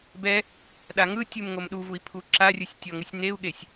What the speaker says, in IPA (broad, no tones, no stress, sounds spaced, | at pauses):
b ɛ | ɗ a ŋ ɯ tʲ u m ŋ o m ɗ u v u i̯ pʰ u ǁ a rʲ ɯ sʲ tʲ ɔ ŋ ɯ sʲ n e u̯ ɠ e sʲ